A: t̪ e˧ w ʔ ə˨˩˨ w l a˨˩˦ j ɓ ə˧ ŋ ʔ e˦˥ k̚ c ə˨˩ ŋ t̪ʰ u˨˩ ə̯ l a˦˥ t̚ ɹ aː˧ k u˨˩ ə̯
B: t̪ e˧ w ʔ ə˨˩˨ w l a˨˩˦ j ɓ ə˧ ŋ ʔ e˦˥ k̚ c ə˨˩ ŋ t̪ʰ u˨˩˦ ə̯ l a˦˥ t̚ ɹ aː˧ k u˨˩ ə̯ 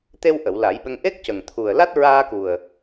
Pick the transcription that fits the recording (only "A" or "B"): A